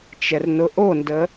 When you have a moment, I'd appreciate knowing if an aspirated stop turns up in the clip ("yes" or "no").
no